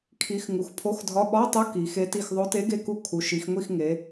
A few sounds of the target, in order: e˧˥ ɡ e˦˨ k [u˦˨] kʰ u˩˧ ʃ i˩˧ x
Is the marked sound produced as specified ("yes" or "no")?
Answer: yes